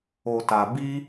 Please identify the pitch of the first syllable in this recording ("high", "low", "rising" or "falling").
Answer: low